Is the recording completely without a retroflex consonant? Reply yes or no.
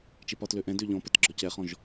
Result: yes